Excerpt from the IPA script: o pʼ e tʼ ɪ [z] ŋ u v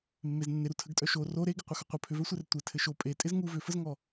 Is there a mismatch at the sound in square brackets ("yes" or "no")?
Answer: no